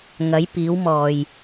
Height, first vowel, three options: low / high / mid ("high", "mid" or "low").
low